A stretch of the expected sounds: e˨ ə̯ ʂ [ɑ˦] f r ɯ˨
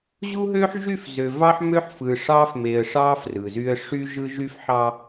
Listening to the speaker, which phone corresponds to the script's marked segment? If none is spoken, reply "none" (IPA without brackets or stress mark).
ɑ˦